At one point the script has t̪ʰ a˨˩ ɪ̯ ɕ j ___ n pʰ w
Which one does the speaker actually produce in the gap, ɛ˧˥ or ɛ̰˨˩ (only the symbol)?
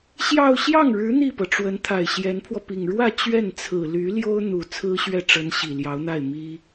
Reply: ɛ˧˥